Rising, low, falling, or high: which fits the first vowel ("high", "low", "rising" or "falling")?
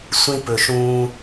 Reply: high